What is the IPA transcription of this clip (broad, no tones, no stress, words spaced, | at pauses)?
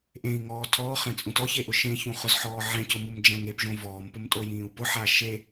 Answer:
ʔẽi̯ŋɔː tʰɔːχɛ̃t͡sʼũt ɔçeʔʊ ʃẽçũχʊzħɔː ʕɛ̃cʊmumd͡ʒɛ̃ ŋepʒõ vɔːmpʊmtʼojĩːu̯ pʊħa ʃe